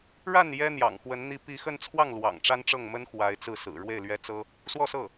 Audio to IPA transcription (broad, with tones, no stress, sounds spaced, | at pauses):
ɻ a˥˩ n j ɛ˥ n̪ j ɑ̰˨˩ ŋ x w ə˧˥ n n̪ i˥˧ p i˥˧ x ə˥˧ n t͡sʰ w ɑ˥˩ ŋ l w ɑ̰˨˩ ŋ ʈ͡ʂ a˥ n ʈ͡ʂ ɤ˥˩ ŋ m ə˥ n x w a˧˥ ɪ̯ t͡s ɹ̩˥˩ s ɹ̩˨˩ ɻ w e˥˩ ɪ̯ l ɥ ɛ˥ t͡s ɤ˥ | s w ɔ˥˧ s ɤ˥˩